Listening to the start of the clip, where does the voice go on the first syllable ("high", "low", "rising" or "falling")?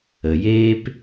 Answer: low